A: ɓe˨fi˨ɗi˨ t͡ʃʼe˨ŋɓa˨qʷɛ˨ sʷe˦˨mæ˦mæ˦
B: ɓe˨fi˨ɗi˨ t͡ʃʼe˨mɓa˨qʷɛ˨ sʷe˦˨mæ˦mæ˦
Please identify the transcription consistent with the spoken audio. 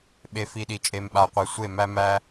B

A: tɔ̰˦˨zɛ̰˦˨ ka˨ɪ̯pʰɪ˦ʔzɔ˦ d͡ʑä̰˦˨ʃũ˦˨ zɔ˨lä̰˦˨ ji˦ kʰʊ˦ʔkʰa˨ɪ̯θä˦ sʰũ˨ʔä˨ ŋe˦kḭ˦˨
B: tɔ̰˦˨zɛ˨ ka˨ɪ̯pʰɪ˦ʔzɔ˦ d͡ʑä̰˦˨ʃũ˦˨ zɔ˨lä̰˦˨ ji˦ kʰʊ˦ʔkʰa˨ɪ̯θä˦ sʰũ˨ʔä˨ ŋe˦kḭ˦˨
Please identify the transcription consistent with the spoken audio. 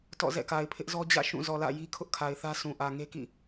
A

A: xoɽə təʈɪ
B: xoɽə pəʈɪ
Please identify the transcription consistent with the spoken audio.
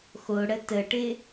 A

